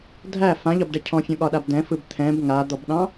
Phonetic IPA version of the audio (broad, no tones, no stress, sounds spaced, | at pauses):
dʱ æ f ã ʎ ɒ b ɖ ɛ cʰ ɔ̃ fʲ ɔ̃ ɠ ɒ ɗ a b d ɛ̃ f ɯ b t̪ʰ ɛ̃ b ŋ a d̪ ɔ b ɗ ɑ̃